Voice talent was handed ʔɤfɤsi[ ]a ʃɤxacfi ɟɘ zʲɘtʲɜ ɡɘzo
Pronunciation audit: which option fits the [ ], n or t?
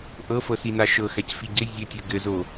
n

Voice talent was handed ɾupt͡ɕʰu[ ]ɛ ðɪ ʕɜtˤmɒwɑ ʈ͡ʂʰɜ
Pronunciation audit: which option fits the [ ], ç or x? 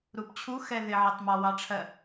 x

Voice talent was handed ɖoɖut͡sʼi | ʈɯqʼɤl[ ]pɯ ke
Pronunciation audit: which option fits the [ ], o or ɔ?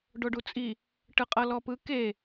ɔ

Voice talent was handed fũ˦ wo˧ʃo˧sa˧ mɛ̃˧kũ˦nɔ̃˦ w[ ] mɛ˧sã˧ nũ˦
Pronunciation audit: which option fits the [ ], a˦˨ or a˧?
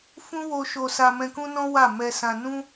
a˦˨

